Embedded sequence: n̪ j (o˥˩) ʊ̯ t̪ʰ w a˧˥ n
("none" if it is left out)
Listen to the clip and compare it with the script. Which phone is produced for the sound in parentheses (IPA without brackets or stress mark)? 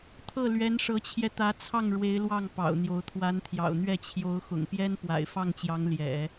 o˧˥